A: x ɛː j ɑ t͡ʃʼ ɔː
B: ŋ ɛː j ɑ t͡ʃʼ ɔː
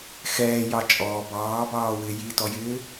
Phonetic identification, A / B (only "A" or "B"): A